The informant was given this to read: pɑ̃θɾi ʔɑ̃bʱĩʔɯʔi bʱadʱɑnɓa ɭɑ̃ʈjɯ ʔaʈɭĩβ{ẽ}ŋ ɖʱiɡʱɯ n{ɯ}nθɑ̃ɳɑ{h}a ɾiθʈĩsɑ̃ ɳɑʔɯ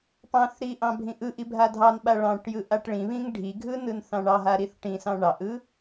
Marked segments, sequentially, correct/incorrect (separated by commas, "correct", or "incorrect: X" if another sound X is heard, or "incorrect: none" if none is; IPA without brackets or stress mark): incorrect: ĩ, correct, incorrect: ɦ